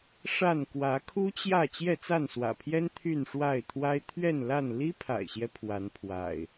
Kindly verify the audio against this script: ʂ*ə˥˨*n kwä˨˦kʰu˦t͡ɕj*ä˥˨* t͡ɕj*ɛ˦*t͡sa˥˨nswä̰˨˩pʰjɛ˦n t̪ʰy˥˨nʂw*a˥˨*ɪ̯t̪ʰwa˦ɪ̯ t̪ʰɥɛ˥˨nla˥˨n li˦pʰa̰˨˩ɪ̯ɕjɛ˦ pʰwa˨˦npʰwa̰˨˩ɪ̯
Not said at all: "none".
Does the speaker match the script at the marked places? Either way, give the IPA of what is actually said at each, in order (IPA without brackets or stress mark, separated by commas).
a˥˨, ä˥˨, ɛ˥˨, a˥˨